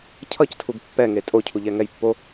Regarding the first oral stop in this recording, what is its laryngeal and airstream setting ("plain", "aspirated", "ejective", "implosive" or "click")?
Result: aspirated